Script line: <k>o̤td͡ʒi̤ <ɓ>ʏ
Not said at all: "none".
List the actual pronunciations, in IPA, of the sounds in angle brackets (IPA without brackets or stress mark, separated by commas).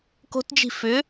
k, f